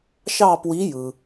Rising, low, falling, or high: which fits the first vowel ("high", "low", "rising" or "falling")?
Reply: falling